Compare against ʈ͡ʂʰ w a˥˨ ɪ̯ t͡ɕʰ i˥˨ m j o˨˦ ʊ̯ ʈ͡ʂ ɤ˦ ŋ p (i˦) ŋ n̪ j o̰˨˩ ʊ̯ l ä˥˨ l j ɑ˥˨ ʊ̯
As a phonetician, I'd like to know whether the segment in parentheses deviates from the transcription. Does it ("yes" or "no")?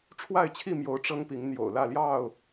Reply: yes